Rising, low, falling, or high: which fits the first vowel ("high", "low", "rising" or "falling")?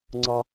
high